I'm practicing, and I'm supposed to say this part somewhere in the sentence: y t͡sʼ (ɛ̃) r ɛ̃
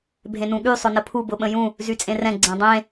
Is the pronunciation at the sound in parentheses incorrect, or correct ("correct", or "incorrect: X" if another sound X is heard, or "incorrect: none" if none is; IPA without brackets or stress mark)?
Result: incorrect: ẽ